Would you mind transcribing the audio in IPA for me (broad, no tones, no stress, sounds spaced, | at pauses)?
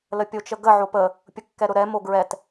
l ə pʲ o t͡ʃ ə ɡ ə ʕ o p ə | pʲ ʊ kː ɛ ɾ ʊ ɾ ɛ m o ɡ ɹ ɛ t